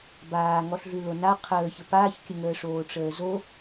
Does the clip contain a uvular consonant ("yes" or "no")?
yes